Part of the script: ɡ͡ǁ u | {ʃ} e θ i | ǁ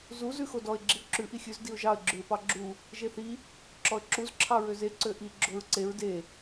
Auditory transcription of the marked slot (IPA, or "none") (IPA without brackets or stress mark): ʒ